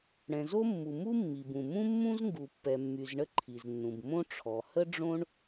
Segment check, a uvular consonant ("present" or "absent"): absent